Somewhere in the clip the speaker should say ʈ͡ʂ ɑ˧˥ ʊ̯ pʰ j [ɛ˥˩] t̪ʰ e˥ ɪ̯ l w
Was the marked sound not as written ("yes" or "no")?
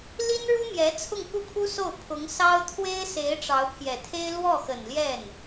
yes